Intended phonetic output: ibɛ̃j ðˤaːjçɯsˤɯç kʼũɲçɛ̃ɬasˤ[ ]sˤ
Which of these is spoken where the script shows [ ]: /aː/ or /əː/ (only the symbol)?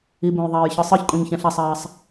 aː